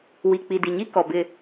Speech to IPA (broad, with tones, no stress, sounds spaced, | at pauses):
w i˨ k͡p i˨ d i˨ ɲ i˦ k ɔ˨ b ɪ˦